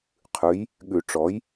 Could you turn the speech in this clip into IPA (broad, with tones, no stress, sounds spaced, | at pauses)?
qʰ ʉ˩˥ j | ɠ ʉ˨˩˦ ʈ͡ʂ ɔ˩˥ j